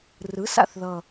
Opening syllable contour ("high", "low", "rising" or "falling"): rising